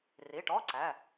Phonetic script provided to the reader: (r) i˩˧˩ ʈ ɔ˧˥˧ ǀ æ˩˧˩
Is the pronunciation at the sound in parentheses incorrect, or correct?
correct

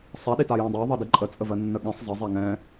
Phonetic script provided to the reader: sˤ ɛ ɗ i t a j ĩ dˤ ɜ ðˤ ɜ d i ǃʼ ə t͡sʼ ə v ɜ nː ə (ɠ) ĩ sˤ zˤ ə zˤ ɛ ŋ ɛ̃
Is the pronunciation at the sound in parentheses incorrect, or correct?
correct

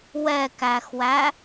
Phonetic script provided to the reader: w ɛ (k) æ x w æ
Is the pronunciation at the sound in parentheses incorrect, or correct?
correct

